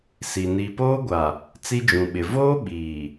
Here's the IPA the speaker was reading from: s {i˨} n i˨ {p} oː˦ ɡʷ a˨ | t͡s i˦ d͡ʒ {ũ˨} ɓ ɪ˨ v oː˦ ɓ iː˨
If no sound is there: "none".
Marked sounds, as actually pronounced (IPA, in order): i˨, p, ũ˨

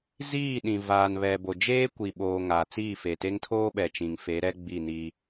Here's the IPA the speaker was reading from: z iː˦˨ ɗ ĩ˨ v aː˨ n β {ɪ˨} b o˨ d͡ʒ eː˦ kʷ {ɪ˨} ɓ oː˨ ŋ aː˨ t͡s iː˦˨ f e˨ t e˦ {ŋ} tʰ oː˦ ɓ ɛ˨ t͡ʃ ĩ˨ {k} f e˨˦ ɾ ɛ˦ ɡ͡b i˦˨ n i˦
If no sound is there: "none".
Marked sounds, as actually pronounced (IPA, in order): ɛ˨, i˨, ŋ, ŋ

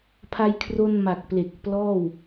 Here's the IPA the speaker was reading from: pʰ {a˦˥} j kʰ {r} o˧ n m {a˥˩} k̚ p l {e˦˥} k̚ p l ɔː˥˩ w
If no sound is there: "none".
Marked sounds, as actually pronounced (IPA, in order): a˧, r, a˨˩, e˨˩

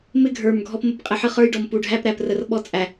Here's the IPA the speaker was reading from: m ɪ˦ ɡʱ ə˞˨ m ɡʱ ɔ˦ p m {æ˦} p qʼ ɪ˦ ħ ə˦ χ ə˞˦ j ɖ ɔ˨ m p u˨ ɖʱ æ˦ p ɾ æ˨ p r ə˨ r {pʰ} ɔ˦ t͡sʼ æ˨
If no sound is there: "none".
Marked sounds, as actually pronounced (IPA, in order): ə˦, ɓ

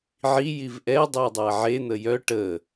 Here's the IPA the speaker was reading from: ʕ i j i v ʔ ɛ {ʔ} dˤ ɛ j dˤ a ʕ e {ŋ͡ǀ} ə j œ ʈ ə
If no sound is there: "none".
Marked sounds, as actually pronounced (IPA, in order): none, n̪

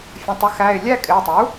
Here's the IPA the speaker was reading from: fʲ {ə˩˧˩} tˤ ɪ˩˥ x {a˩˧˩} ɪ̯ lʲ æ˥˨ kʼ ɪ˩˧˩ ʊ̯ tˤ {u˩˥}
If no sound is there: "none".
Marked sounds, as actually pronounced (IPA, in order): ə̃˩˧˩, æ˩˧˩, u˩˥

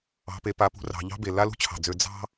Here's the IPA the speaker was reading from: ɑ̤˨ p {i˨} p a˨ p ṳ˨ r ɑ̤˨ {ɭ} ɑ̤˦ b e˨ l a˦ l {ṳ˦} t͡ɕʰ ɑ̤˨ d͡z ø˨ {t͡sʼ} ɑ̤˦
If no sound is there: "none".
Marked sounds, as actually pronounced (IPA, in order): e˨, ʎ, ṳ˦, d͡z

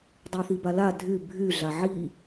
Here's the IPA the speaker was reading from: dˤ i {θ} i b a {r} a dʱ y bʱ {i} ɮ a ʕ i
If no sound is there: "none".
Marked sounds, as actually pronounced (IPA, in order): θ, l, y

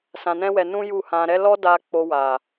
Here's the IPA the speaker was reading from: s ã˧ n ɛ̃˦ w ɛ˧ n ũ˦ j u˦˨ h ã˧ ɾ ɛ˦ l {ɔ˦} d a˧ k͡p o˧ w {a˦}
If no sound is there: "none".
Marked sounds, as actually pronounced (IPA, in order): ɔ˦, a˨

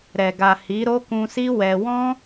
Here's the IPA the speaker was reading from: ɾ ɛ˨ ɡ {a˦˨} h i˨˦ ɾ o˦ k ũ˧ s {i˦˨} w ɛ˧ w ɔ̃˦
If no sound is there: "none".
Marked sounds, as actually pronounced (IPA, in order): a˨, i˦

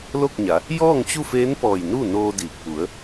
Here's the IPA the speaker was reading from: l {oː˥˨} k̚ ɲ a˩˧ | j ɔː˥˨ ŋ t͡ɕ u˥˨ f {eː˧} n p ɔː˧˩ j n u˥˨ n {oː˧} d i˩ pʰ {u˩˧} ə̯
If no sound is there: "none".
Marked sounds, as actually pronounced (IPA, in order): o˥˨, eː˧˥, oː˧, u˩˧

